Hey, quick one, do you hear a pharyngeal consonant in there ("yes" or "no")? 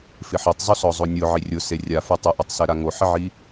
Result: yes